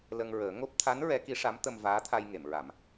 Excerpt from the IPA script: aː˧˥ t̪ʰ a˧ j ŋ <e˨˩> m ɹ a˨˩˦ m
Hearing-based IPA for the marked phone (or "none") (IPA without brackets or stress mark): e˨˩˨